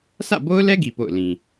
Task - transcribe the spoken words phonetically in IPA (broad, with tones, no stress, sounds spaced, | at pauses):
sʰ ä̰˦˨ b o˦ ʊ̯ l ɛ˦ ɡ i˨ p o̰˦˨ ʊ̯ l ĩ˨